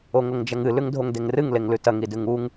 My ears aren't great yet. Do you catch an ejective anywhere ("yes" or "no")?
no